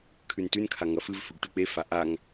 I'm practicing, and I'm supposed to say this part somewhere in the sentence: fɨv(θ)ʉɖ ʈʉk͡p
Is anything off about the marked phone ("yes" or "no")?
yes